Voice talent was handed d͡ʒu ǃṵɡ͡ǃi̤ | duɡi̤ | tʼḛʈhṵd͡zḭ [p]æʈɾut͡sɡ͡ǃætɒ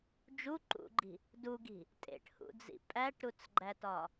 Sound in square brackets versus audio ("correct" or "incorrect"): incorrect